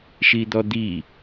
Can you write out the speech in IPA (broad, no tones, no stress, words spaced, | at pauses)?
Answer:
ʃid̪ɔd̪i